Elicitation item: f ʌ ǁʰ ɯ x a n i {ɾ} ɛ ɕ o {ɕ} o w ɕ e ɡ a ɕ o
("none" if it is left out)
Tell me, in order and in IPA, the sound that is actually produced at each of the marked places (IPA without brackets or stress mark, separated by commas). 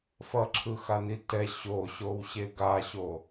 t, ɕ